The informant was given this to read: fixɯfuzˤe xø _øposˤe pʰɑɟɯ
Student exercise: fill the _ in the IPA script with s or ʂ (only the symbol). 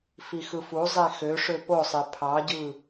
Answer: ʂ